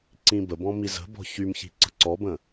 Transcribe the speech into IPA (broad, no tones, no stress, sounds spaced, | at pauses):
ǀ ĩ b ə b ɔ̃ m i z ə̤ b ɔ̤ ç y m ç i̤ ǀ ə̤ ǀ ɔ b ə̃